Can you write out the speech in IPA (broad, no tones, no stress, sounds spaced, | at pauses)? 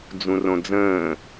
d͡z ũ r õ d͡z ə̃ː